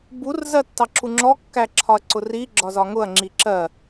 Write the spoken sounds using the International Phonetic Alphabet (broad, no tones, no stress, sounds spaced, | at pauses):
b u r z ɜ tː ɑ ǁ u ŋ͡ǁ ɔ kː æ ǁʰ ɒ ɐ̯ ǀ ʊ r i ɡ͡ǁ ɒ z ɒ ŋ ʊ ɐ̯ ŋ͡ǁ i ǁ ɜ